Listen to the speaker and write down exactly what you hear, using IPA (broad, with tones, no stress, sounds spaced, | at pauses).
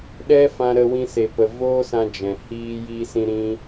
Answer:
ɗ ɛ˦ f ã˧ ɾ ə˧ w ĩ˧ s e˨ p ə˨ v oː˦ s ã˧ d͡ʒ ɛ̃˨ h iː˦ j iː˦ s ĩ˦ ɾ ĩ˦